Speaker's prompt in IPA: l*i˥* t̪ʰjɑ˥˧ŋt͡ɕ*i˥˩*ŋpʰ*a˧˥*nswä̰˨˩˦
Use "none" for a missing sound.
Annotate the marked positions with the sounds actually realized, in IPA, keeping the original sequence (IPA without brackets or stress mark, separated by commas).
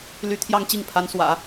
y˥, i˥˩, a˧˥